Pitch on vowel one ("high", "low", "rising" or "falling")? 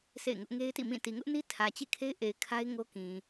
falling